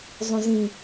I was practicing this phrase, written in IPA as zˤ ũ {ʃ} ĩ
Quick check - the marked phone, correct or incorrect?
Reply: incorrect